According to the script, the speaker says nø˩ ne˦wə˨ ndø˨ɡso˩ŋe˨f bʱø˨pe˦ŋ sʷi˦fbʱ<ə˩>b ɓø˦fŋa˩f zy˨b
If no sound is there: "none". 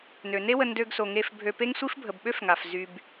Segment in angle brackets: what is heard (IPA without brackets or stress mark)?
ə˩